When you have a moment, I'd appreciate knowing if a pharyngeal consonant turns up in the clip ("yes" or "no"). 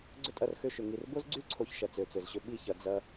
no